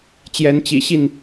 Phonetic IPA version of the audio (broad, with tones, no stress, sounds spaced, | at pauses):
t͡ɕ j ɛ˨˦ n t͡ɕ ḭ˨˩ ɕ i˥˨ n